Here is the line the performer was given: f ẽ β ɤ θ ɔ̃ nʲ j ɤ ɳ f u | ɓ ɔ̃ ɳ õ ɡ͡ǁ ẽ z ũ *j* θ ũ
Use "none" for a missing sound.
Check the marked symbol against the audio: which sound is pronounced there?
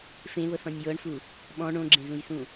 j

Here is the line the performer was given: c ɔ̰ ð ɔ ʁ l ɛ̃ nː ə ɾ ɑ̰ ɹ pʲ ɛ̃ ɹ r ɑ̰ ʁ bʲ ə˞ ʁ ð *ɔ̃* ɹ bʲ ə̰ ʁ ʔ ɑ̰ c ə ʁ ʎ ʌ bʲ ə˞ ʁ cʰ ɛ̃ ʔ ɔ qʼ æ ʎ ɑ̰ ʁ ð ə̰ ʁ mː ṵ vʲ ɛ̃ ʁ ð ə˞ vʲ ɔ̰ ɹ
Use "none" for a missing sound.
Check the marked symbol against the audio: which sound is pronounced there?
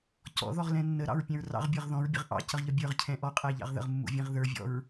ɔ̃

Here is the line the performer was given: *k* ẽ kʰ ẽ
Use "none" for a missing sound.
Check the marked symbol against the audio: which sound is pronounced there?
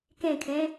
k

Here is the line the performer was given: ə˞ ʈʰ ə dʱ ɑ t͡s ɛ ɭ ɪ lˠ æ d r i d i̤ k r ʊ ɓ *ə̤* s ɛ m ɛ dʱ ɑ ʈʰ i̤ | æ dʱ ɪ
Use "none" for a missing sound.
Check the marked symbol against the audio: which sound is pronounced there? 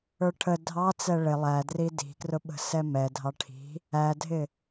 ə̤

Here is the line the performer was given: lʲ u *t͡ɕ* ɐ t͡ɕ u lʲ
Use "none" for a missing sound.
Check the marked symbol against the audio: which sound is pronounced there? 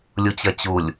t͡ɕ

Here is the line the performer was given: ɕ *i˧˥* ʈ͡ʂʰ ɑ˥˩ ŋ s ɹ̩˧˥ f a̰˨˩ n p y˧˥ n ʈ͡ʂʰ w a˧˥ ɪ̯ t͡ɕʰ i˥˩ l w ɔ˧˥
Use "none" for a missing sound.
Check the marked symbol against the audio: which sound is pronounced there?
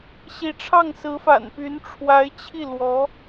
i˧˥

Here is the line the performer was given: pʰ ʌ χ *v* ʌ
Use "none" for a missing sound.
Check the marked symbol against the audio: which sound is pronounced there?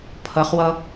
w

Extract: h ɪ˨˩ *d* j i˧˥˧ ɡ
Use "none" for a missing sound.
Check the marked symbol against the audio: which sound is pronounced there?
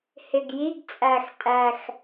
ɡ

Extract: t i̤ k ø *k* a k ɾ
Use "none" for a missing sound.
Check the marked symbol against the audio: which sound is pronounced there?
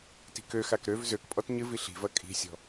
x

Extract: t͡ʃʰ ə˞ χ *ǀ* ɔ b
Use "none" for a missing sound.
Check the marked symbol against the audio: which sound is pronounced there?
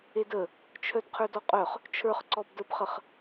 ǀ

